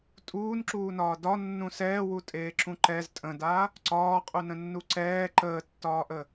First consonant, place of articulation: alveolar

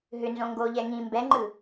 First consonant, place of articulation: glottal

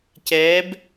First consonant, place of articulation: palatal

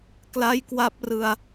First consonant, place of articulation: velar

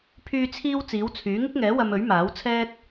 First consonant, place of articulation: labial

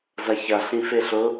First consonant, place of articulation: alveolar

